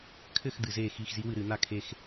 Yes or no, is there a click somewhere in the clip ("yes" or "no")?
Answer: no